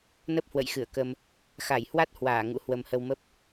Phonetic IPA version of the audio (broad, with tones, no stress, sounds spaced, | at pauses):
n ə˦˥ p̚ h w ə̰˧˨ j x ɨ˧˩ ə̯ k ə˧ m | x a˧˩ j h w a˦˥ t̚ h w aː˧˩ ŋ ṵ˧˥ h w ə˨˩ m h ə˧ w m ə˦˥ p̚